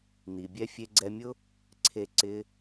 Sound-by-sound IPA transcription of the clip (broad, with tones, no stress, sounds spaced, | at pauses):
n i˨ bʲ ɛ˧ fʲ e˧ ɡ͡ǀ ɛ˧ mʲ ʊ˦ | ǀʰ e˧ ǀ ɪ˦